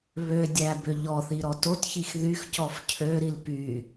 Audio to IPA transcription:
β ø dʲ æ b ø ʎ ɔ θ i ɾ ɔ t o t ç i x ð y x c ɔ f cʰ ø ɾ i l p y

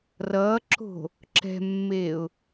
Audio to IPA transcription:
r ʌː ǁ o̤ | ǁ ɛ̤ mː eː ʊ̯

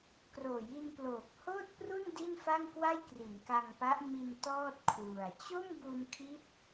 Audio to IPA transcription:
k r oː˨˩ j i˧ n p l oː˨˩ k̚ h oː˥˩ t̚ p r u˥˩ n d i˥˩ n f a˥˩ ŋ k w a˥˩ j k r i˩˦ n k a˧ ŋ p a˦˥ ʔ m i˧ n t ɔː˥˩ t̚ kʰ w u˨˩ a̯ t͡ɕ o˥˩ m b u˧ n kʰ i˦˥ t̚

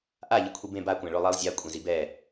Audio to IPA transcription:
ʔ a ʎ i kʷʰ i b ẽ b a kʷ æ̃ ɭ o lˠ i lˠ zʲ a kʷʼ ẽ z i b ɛ

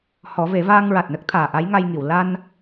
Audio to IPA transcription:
h ɔ˨˩˦ v e˨˩˦ v aː˧ ŋ ɹ a˨˩ t̚ n ə˦˥ k̚ t̪ʰ aː˨˩ ʔ a˧˥ j ŋ a˧ j ŋ i˨˩˨ w l a˧ n

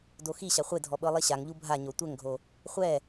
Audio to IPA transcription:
d o x i ɕ a χʷ e dʱ ɔ ɓ ɤ lˠ i ɕ a ŋ ʎ u bʱ a ɲ o tʷ ɛ ŋ ɡʱ o | χʷ ɛ

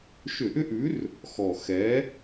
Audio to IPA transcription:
ʃ ʏ˧˩˧ ʔ ʏ˦ ʔ ʉ˨˥ r | x ɔ˨˩ x ɛ˨˥

